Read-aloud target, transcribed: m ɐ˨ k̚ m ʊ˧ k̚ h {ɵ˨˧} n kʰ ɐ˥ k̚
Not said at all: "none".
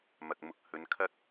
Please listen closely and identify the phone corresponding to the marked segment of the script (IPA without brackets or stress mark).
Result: ɵ˨˧